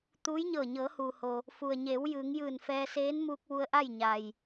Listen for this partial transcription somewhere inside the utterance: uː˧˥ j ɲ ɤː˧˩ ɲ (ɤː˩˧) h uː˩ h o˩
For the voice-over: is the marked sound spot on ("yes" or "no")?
yes